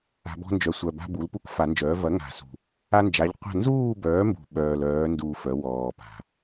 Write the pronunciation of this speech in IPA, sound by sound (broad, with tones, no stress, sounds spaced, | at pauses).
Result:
a̤˨˩˦ b ɔ̤˦ n d͡ʒ œ˨˩ sʷ œ˨˩ b a̤˦ b u˩˥ l p u˦ k f a˨˩˦ n d͡ʒ œː˩˥ v ɐ˩˥ ŋ a̤˨˩ s ṳ˨˩ | a˦ n d͡ʒ a˩˥ ʎ qʷ a̤˥˨ n z uː˥˨ b œː˩˥ m b ṳ˨˩ ɓ œː˨˩ l œː˩˥ n d uː˨˩˦ f œ˩˥ w ɔː˨˩ p a̤˨˩